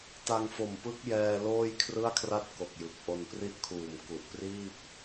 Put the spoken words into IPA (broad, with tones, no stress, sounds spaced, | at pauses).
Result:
t a˧ ŋ f o˨˩ m p ɯ˦˥ k̚ j ɛː˧ l oː˥˩ j kʰ r ɯ˥˩ a̯ kʰ r a˥˩ t̚ k o˨˩ k̚ j ɯ˨˩ k̚ ʔ o˧ n p r i˥˩ ʔ kʰ uː˨˩ m k u˨˩ ʔ p r iː˥˩ p̚